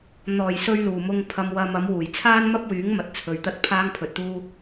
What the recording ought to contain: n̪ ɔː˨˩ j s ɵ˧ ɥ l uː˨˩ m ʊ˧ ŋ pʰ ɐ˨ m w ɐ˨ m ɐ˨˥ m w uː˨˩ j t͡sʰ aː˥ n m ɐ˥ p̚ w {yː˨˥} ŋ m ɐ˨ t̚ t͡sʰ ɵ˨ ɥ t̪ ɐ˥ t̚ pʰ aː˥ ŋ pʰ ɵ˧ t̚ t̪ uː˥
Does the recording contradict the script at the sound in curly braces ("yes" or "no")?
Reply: no